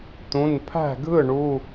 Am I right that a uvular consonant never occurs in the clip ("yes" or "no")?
yes